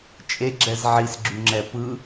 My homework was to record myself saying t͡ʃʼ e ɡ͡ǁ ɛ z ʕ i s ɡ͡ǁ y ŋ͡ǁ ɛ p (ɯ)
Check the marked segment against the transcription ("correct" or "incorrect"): correct